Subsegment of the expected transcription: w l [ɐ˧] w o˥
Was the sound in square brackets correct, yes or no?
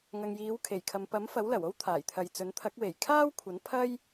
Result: no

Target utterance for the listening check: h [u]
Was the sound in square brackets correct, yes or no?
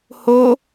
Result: no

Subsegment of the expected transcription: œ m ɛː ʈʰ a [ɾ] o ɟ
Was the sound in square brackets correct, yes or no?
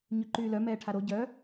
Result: yes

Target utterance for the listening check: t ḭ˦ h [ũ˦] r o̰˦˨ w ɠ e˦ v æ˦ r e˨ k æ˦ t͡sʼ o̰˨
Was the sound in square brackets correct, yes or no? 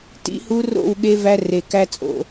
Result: no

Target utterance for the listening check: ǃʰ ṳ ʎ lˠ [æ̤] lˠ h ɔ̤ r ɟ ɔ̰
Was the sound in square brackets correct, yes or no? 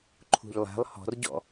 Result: yes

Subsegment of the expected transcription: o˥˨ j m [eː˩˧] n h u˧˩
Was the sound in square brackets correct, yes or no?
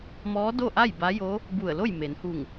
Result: no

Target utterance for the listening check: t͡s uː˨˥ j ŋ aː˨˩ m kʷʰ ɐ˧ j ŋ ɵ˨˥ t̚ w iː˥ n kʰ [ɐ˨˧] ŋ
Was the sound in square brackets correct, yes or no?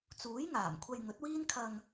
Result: no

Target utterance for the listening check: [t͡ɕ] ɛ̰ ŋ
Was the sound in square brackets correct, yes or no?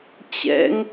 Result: yes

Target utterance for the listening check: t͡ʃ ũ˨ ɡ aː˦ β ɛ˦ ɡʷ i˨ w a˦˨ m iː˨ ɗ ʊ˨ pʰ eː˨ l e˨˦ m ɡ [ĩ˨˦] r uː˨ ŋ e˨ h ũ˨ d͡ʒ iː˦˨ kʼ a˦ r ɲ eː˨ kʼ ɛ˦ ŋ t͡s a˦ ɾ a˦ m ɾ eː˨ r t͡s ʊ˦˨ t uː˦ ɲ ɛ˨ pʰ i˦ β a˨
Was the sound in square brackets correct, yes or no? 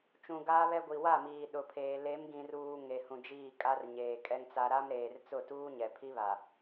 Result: no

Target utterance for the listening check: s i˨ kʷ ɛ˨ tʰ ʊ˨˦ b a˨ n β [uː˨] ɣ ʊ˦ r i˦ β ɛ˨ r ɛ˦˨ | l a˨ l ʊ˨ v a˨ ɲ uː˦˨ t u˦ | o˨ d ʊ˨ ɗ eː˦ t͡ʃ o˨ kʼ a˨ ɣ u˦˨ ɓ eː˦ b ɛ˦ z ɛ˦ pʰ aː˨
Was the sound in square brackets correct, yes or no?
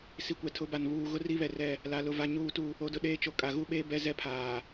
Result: yes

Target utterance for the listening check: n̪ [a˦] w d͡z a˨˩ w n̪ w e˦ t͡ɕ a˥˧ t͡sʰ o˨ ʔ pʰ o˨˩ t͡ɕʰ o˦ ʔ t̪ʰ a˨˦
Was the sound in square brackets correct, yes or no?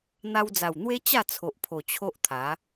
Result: no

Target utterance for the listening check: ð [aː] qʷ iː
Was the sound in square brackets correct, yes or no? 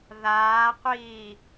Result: yes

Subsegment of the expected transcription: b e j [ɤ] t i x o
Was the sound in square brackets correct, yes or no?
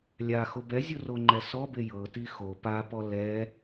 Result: yes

